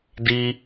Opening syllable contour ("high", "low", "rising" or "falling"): high